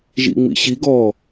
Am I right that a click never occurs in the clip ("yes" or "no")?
yes